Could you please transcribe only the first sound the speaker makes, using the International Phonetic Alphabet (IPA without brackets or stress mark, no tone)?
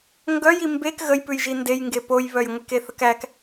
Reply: ŋ